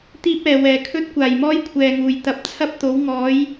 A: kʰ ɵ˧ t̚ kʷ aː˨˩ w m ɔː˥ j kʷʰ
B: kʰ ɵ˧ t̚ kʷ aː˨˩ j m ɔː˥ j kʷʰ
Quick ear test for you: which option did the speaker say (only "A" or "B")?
B